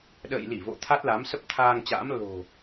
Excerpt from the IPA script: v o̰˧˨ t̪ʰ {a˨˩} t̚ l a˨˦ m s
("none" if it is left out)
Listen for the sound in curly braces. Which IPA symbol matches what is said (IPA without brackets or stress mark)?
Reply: a˦˥